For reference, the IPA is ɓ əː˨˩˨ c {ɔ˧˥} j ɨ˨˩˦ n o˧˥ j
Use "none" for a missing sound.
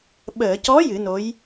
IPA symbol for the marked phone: ɔ˧˥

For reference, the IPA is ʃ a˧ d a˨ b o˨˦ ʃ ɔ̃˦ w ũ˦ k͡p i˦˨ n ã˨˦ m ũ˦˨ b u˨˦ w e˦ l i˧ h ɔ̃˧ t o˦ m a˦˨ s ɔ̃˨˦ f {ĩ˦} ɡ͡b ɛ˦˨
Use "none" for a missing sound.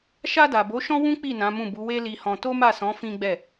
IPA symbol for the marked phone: ĩ˦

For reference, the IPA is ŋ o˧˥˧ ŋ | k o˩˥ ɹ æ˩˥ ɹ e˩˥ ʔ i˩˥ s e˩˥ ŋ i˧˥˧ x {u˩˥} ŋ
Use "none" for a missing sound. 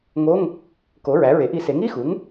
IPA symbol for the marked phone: u˩˥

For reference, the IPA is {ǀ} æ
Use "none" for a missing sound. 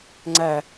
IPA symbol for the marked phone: ŋ͡ǀ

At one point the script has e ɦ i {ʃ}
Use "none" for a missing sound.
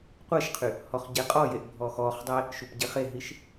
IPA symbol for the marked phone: ʃ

